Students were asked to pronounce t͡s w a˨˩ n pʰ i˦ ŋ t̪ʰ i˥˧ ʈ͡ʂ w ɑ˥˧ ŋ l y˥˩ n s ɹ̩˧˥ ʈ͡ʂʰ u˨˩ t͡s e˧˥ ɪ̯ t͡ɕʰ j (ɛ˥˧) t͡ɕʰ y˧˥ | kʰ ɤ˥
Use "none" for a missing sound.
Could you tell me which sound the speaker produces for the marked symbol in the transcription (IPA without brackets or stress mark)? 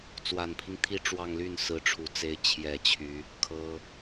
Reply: ɛ˨˩